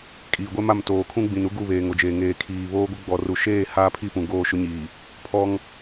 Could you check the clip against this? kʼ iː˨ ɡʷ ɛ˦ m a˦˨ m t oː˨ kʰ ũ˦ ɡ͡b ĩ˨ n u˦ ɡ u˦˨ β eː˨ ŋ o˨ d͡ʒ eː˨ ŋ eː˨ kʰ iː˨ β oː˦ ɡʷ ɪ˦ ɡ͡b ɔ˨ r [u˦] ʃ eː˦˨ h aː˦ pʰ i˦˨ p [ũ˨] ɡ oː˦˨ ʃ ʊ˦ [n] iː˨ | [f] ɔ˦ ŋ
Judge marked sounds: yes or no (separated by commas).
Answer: no, yes, no, no